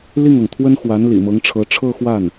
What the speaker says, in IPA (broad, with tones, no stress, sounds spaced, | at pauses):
l i˥˩ ŋ ɤ˩ ŋ t̪ʰ w ə˥ n x w a˧˥ n l ḭ˨˩ m ɤ˧˥ ŋ ʈ͡ʂʰ ɤ˧˥ ʈ͡ʂʰ ɤ˥˧ x w a˥˩ n